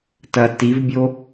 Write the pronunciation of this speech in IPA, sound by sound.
tɐ tivbʲo

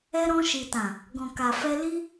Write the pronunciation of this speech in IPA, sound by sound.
ɛ˧ɾɔ̃˧ʃi˨tã˨ | ɡɔ̃˨ka˨fɛ˧ li˦

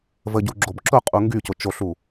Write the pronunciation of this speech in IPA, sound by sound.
vəɟu ɡ͡ǁobǁʊ qʼuŋɡycʊ t͡ʃoɬu

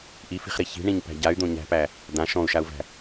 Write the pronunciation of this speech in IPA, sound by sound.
ʔifi̤χɾi çi̤ɳĩɲpæ̤ ɟay̯d̪õ ɲæ̤pæ | d̪ã ʃɔ̃u̯ʃau̯væ̤

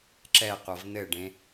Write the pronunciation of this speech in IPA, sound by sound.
ǁɛqʷʌv n̪ɘɖẽ

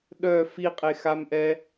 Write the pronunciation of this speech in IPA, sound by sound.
ɗœ fiqʼexamʔɛ

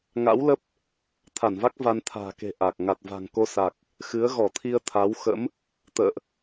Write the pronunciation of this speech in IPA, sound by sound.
ŋa̰˧˥wlə˦˥p̚ | t̪ʰa˧˩nva˦˥k̚ va˧nt̪ʰa̤ː˨˩ke̤˨˩ ʔa˨˩k̚ ŋa˨˩t̚va̤˨˩ŋko˧sa˨˩k̚ | xɨ˨˦ə̯ɣɔ˧˩t̪ʰi˧ə̯ t̪ʰa˨˦wxə̰˧˥m | t̪ə̰ː˧˨ʔ

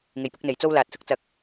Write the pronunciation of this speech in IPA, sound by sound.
ŋe˨˩jpʊ˨k̚n̪e˨˩j t͡so˧wlaː˨t̚sʊ˧k̚t͡sɐ˨˥k̚

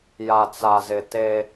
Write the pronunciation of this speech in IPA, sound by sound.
ja˨t͡sa˨zɪ˨ te˦

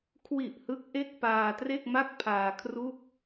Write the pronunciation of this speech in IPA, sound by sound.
kʰwi˨˩ʔ hɯ˦˥k̚ ʔe˥˩k̚paː˧ tre˥˩k̚ma˥˩k̚pʰaː˧kʰru˥˩k̚

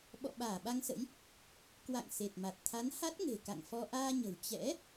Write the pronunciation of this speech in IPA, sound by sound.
ɓɔ̰˧˨ɓaː˧˩ɓa˧ŋsə̰˧˥j | kwa̰˧˨ŋ se˨˩t̚ma˨˩t̚ t̪ʰa˨˦nha˦˥t̚ŋe̤˨˩ ka̰˧˨ŋfɔ˧ ʔaː˧ɲə̤˨˩w t͡ɕɛ̰˧˥

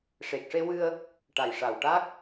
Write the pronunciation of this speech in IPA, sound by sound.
ʂe˨˩k̚ʂe˧wɨ˧ə̯ | ʈa˨˩jʂa˨˩w ʈa˦˥k̚

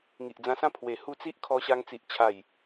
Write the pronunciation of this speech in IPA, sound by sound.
ŋi˨ʔd͡zã˧sã˥˧ pʰwe˨˩hu˧t͡si˦ʔ kʰɔ˧ɕa˧ŋt͡si˨ʔ t͡ɕʰa˨˩j

